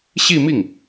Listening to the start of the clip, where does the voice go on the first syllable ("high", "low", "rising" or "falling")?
falling